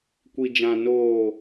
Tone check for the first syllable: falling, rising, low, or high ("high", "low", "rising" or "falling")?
low